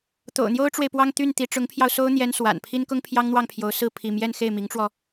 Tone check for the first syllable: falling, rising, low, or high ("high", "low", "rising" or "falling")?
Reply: low